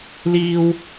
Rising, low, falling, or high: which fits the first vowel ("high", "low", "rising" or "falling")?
high